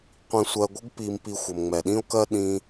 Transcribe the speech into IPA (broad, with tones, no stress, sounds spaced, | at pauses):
qʷ ĩ˧ sʷ ɜ˨ ɡʷ ə˧ ɡ p i˨ m p i˨ xʷ ə˨ m ŋ͡m ɛ˨ ɗ ĩ˦ o̯ k ɜ˦ ɗ ĩ˧